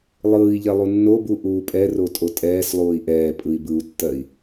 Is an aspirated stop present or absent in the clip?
absent